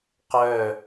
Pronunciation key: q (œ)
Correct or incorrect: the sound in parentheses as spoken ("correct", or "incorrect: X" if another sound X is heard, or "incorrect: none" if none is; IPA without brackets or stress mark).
correct